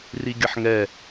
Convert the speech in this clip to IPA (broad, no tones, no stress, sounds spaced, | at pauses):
r i ɡʲ ə ħ ŋ ɛ